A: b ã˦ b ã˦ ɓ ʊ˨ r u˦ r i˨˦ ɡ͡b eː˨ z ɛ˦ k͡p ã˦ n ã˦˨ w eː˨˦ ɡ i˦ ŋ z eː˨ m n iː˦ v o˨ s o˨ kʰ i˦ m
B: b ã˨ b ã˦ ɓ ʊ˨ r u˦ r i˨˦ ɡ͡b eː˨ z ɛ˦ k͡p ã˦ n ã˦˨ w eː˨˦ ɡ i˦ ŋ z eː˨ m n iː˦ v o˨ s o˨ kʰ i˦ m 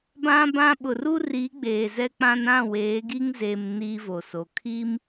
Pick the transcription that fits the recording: A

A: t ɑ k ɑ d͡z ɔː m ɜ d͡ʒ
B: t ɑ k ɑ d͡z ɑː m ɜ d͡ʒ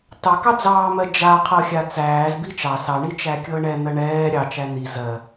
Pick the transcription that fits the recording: B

